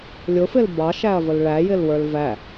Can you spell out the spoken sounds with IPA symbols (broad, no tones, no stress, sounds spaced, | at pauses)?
lʲ ʊ f ɪ l b ɑ ʃ æ ɐ̯ v ə l ɭ æ j ɪ l w ə˞ l v æ